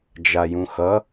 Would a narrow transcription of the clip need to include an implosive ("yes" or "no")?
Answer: no